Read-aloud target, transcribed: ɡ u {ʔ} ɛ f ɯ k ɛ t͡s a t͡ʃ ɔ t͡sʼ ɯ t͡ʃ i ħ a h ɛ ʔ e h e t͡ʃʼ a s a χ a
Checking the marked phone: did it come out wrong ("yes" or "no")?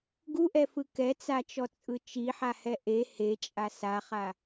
no